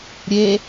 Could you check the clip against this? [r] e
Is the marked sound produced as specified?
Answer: no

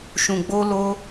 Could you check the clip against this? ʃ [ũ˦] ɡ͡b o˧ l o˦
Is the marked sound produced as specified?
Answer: no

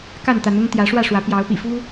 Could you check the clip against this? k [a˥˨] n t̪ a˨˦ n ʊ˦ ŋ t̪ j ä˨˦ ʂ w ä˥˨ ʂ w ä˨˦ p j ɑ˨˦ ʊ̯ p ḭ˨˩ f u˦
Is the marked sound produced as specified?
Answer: yes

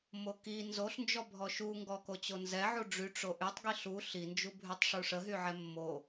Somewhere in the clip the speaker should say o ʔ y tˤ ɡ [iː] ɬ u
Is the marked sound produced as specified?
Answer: no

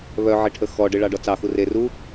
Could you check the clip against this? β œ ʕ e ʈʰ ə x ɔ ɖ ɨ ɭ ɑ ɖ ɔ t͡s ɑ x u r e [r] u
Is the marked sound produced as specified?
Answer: yes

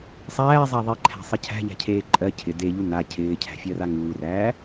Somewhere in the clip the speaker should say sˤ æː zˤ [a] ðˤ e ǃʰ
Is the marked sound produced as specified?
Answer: no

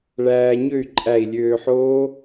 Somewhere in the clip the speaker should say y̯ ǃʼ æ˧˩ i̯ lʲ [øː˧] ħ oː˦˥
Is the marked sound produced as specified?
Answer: yes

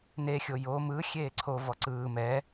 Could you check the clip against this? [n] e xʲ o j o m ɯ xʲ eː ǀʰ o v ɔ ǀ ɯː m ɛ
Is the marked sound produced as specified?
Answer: yes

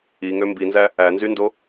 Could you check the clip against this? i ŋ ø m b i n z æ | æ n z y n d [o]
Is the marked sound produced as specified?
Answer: yes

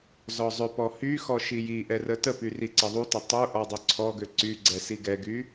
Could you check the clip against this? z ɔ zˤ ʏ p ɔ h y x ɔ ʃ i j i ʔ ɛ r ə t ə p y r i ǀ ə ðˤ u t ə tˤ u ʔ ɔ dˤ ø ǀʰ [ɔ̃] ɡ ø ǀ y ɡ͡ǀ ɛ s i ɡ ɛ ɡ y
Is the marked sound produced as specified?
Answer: no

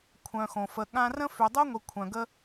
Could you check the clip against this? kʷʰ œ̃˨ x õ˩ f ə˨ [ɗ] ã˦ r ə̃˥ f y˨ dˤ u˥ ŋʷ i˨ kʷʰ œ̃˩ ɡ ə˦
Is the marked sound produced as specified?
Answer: no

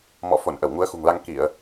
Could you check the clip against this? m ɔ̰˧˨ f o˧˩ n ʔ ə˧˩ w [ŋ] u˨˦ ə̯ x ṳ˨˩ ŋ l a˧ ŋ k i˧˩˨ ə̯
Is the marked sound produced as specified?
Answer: yes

